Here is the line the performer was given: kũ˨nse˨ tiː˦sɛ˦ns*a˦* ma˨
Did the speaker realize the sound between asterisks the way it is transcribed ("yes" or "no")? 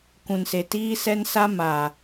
yes